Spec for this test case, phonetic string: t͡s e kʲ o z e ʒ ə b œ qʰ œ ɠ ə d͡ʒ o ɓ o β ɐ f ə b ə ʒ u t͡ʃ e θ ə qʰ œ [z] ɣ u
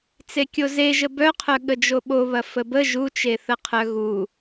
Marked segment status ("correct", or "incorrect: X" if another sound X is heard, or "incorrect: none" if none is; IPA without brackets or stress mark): incorrect: none